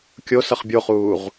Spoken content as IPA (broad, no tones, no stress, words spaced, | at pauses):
kʲo sʌχbʲoχuːʁ